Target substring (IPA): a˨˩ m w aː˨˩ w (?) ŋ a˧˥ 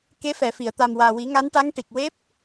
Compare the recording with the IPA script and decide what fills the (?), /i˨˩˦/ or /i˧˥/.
i˨˩˦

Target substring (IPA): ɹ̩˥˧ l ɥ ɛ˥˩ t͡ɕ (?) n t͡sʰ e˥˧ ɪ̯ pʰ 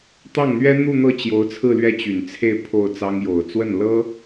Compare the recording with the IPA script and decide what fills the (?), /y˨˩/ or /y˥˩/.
y˨˩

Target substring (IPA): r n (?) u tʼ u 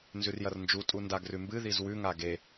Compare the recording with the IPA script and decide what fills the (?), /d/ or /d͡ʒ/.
d͡ʒ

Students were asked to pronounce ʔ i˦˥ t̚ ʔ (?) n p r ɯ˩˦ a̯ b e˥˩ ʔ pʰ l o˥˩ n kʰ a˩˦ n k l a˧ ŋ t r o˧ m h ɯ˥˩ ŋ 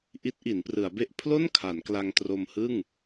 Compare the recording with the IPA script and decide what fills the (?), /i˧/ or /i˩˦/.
i˩˦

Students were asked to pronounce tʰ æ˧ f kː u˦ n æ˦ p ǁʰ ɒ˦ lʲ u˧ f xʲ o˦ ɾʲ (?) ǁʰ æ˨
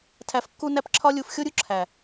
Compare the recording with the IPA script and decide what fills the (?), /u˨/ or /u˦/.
u˦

